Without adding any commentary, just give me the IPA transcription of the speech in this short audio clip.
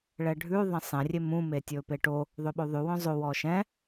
ɭɛɖʱʉ ðˤɛ̃sˤɛ̃ rʲemũ metʲɵːpeʈo | ðˤøɓoðˤʉ wœ̃zˤo wɔːʃɛ̃

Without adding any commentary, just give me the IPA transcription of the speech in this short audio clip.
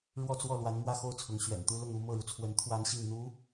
ɻwɔ˥˧t͡swɔ˥˩lwa˧˥n mwä˥˧xo˥˩ʊ̯t͡sʰʊ˧˥ŋ ɕɥɛ̰˨˩nt̪u˥lʊ˥˧ŋ u˥˧ mɤ˥˩ɻu˩t͡sʰwə˧˥n t̪ʰwa˥nɕi˥˩ŋ n̪u˧˥

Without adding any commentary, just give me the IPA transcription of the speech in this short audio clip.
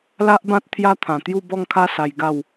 la˦ʔbã˦t̚ t̪ʰja˦t̪ʰã˨˩t̪ju˥˧ bɔ˥˧ŋkʰa˦ sa˧j ɡa˥˧w

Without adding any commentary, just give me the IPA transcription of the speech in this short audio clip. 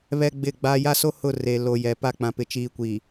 βɛ˦ɡ͡bɪ˦˨ɡ͡baː˦ ja˦so˦ hʊ˦˨re˨lo˨ jɛ˨pa˦ k͡pã˨pɪ˨t͡ʃiː˨ kʷiː˨

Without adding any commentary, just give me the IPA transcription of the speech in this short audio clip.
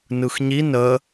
nɯxɲi nə

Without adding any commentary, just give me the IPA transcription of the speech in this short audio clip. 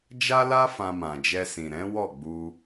d͡ʒa˦la˦ fã˧mã˨d͡ʒɛ˧ sĩ˨ɾɛ̃˨˦ wɔ˦˨ɡ͡bu˧

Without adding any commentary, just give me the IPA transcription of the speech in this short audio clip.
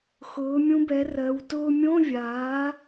xʊː˩˥mʲũ˧˥bɛ˩˥rɜ˩˧w tʊː˧mʲõ˧˥˧ vʲaː˩˥

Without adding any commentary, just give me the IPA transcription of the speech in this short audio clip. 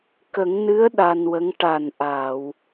kə˨˩˦ŋnɨ˧˥ə̯ ɗa˧nwə˧˥ŋ ʈa˨˩nʔa˨˩˨w

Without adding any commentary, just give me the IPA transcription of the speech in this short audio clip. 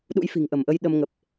ɗṵ˧˥jfi̤˨˩ŋʔə˧˩mʔə˧j ɗə˧mŋə˨˩p̚

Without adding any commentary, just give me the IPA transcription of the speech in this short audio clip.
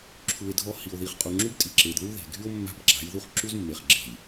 ǁʰu˨e̯ dʱɔ˦˨ hi˨o̯ði˨χ qʼu˨ŋ͡ǁu˦btʼi˨ ǁe˨dðu˦ðe̤˨ɡʱy˦o̯ mːa̤˦bɡ͡ǁa̤˨˦jðu˦χ ǁu˦zmːe˨χɡ͡ǁe̤˨j

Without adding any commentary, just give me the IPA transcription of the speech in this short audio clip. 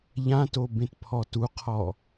ʎãto bẽtpʰɔtuqʰɔ

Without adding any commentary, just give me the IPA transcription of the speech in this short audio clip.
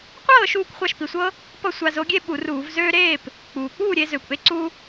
qʷɤː˥˨ ʃuː˥˨kʷχʷɑ˥˨ʃpi˩sʷɤ˥ | pʌ˥˨sʷa˧zo˨˥ɡʲe˥ ɓu˧˩˧ruː˧˩˧v zøː˧ ɾeː˥˨p | k͡puː˩k͡puː˥˨ɾʲe˧ zøː˩kʷʔe˥ ǀu˥

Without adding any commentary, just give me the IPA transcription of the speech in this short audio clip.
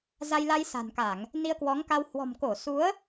za˧jla˧j sa̤˨˩nka˧˩˨ŋ | ni˧ə̯kwɔ˨˦ŋka˧w hwɔ̤˨˩mko˧˩su˨˦ə̯

